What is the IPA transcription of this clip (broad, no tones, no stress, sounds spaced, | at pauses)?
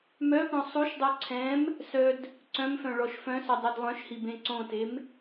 m œ p õ sˤ u ʃ dˤ u ǀʰ ɛ̃ m | s œ d | ǀ œ̃ m f œ̃ ɭ ɔ ʃ f œ̃ s œ dˤ œ d lˠ œ̃ ʃ h i b ẽ ǀ õ t e m